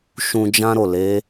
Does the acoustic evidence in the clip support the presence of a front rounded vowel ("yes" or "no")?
no